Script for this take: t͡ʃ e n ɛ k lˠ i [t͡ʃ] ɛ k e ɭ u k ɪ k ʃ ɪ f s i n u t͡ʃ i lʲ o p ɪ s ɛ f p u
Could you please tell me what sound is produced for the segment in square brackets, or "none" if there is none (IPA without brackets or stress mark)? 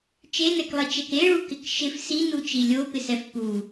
t͡ʃ